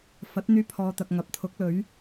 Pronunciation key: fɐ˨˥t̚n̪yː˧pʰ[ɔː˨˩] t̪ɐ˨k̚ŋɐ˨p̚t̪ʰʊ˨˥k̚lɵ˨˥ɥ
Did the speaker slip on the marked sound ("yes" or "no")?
yes